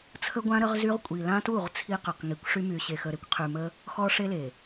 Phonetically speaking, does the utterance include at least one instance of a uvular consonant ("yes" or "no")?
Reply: yes